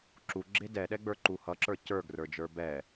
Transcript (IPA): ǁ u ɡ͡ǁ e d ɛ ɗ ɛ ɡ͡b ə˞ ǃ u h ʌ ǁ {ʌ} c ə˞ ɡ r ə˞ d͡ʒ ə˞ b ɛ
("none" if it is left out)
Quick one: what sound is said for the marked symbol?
ə˞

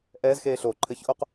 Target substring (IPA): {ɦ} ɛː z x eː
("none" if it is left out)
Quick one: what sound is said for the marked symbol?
ʔ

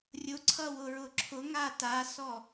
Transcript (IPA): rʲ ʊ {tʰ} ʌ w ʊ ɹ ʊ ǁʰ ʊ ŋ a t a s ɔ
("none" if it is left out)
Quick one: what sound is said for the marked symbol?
ǀʰ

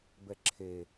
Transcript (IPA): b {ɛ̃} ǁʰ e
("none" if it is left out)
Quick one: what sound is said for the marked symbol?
ɛ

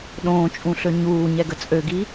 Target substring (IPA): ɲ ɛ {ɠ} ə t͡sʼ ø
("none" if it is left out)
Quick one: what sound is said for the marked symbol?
ɡ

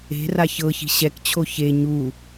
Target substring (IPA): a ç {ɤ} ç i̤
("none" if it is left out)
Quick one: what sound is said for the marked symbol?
ɤ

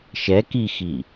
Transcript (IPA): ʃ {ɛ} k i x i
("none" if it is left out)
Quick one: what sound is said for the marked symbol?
ɛ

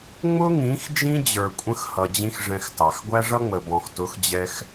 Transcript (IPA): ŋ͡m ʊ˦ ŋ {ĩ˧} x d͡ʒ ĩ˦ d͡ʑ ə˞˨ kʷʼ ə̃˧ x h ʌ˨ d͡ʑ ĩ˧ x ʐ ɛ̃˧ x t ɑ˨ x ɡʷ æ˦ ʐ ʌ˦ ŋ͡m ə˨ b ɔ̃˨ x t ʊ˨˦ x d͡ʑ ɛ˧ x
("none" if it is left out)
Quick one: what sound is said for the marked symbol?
ĩ˨˦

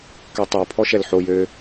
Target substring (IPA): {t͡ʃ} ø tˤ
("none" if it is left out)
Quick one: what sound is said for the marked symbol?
k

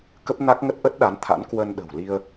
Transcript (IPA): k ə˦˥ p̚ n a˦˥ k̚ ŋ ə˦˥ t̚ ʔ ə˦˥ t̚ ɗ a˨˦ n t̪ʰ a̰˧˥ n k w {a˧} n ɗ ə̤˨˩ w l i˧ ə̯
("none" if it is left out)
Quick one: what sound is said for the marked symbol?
ə˧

